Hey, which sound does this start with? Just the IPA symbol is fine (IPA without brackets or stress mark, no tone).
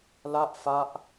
l